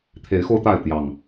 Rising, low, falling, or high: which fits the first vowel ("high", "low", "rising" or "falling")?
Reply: rising